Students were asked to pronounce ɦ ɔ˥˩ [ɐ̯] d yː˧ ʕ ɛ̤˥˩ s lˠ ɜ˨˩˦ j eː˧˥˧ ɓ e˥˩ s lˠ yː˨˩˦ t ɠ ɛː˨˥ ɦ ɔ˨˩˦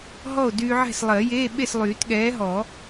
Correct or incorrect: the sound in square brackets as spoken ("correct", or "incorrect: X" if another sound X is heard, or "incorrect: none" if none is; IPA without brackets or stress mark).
incorrect: o̯